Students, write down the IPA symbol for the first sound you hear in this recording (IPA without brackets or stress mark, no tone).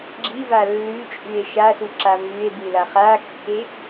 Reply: ɡ͡ǁ